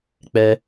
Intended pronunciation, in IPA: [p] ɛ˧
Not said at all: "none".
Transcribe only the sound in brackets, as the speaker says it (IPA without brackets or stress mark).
k͡p